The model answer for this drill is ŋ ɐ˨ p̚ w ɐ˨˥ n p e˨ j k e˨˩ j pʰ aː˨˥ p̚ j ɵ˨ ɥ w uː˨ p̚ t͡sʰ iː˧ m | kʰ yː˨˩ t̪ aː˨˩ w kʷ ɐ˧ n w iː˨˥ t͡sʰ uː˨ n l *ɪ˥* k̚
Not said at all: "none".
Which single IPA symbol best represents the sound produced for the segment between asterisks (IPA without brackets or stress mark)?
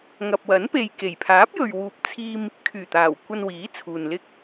ɪ˥